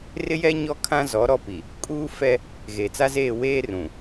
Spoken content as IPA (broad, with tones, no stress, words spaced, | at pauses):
rɪ˦jɛ˦ ɲɔ˦kʰã˦ zɔ˨˦ ɾɔ˦pi˨ | kʼuː˦fɛ˦ | ɣe˨ t͡sa˦zeː˦˨weː˦ rũ˨